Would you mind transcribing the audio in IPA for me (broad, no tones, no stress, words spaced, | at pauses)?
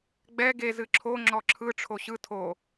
ɡ͡bɛ ɡe zɨǁʰo ŋ͡ǁɔǁʰɯ ʈ͡ʂʰoɕɯ tʰo